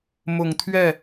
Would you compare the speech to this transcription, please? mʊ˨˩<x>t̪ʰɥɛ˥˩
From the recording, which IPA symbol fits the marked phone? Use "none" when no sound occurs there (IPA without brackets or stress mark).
ŋ